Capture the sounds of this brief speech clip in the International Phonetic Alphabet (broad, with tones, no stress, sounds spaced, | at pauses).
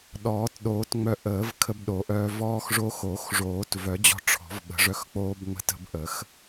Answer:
ɗ ɔː˨˩˦ t ɗ oː˨˩˦ t ŋ͡m œ˧ ʔ əː˨˩˦ v kʰ ə˧ b ɗ o˨˩˦ ʔ œː˧ v ɔː˧ x ʐ o˧ x oː˨˩˦ x ʐ oː˨˩˦ t v œ˨˩˦ d͡ʑ ɔ̤˧ ʈ͡ʂʰ ɔ̤˨˩˦ v ɓ ə̤˨˩˦ ʐ œ˧ x k͡p oː˧ b ŋ͡m ə̤˧ t ə̤˧ b ʔ ə˨˩˦ x